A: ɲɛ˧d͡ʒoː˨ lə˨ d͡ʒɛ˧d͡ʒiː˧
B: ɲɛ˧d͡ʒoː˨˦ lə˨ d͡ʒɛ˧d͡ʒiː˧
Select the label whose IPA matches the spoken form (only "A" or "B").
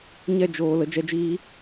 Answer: A